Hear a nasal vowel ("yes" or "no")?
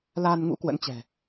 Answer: no